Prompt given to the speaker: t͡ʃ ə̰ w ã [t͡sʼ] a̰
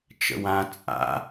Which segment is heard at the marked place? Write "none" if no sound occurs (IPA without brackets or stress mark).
t͡sʼ